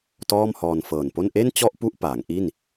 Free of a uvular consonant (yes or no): yes